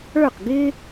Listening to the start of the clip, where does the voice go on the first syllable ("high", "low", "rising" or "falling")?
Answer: falling